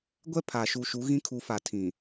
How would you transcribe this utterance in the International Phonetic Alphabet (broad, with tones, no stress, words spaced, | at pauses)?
ɡʷɛ˦ pʰaː˨ ʃu˨ ʃu˨˦ɣĩ˦kʰu˨˦fa˨ tʰĩ˨